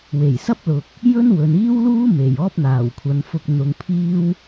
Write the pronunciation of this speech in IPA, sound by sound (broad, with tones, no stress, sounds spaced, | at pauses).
w e˨˩ j s ɐ˥ p̚ l ʊ˨ k̚ | j ɵ˥ n w ɵ˨ n iː˥ w l uː˥ m e˨˩ j ɔː˥ p̚ n̪ aː˨˩ w kʷʰ ɐ˨˧ n f ʊ˧ k̚ n̪ ʊ˧ ŋ pʰ iː˥ w